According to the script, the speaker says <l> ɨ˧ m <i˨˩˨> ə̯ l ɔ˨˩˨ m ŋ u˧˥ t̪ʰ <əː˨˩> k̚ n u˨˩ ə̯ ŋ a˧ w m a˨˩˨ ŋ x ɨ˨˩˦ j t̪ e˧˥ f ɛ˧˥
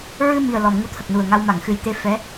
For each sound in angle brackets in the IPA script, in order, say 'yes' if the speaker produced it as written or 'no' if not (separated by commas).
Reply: no, no, no